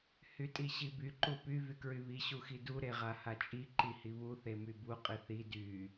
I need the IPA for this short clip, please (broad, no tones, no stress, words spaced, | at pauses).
hytʼiɕiby ǃupy vykɹyβi ɕuxidu ɾeʁahat͡ʃʼi ǃihiβu θemybu qʼiθi dy